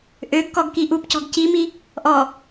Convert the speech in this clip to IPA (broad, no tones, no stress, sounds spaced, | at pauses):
ʔ ø ɡ k ɔ ɡ k i ʔ u p c ɔ̤ ɡ c i m i | ʔ ɔ